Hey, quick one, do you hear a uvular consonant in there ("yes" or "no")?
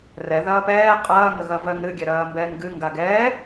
yes